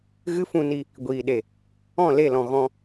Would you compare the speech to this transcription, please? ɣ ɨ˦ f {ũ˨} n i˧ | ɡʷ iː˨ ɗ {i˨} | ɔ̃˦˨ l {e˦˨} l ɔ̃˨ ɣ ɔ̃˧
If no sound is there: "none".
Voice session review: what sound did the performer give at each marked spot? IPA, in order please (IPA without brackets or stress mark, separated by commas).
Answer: ũ˧, e˨, e˦˨